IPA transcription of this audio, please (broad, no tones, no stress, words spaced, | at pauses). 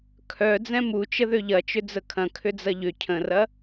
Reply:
kʰœ d͡zɛ̃mut͡ʃə ðøʎɐt͡ʃʏ d͡zəkʰɐ̃ kʰʏd͡zɐʎʏ cʰə̃rɐ